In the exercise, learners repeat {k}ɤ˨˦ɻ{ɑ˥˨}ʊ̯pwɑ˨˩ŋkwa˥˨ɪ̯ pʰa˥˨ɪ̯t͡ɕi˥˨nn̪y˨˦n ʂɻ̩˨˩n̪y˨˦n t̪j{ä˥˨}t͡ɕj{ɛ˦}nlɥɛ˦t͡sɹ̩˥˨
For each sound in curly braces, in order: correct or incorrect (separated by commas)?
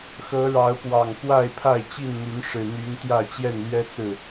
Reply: incorrect, incorrect, correct, incorrect